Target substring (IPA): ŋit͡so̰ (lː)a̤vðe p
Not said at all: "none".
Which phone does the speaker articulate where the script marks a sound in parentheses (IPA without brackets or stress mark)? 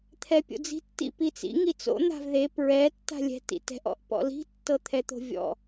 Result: n̪